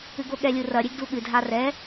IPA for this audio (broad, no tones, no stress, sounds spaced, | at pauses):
ɨ ɡ o ɠ ɛ lʲ u r ɐ ɾʲ e ɡ d u ɠ ɨ dʱ a r ɛ